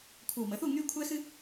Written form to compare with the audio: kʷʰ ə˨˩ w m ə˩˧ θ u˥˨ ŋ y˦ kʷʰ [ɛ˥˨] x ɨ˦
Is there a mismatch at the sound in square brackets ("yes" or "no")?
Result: yes